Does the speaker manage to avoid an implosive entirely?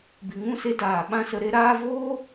no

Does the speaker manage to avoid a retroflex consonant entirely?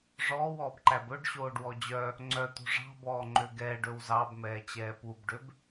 no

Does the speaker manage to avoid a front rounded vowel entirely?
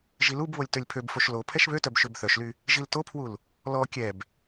no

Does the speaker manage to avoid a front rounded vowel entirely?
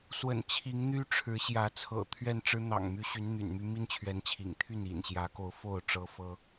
no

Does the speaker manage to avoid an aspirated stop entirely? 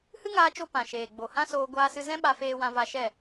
yes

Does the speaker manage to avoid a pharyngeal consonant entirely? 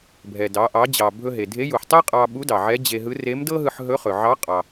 no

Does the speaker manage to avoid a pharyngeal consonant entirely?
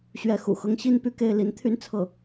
yes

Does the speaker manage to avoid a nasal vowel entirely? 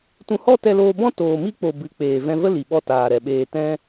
no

